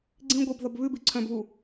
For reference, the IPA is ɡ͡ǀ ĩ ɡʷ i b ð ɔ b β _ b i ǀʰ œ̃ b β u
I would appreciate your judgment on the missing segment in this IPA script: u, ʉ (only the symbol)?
ʉ